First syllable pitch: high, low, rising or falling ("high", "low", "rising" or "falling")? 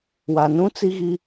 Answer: low